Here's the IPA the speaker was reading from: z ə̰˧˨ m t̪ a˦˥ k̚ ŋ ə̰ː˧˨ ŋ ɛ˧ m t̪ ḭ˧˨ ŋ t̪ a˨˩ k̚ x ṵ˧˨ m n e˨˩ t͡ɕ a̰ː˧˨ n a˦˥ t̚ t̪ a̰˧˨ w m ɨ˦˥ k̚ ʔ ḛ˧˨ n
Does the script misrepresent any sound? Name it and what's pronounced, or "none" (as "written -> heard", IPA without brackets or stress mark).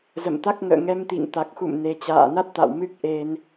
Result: ḛ˧˨ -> e˧